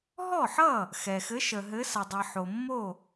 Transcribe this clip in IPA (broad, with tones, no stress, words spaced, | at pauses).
ɦɔ˥˩ħʌ˥˩ | xɛ˩xɘ˨˦ ʃə˩ɦɘ˨˦sə˩dˤʌ˩ ħo˩mːo˥˩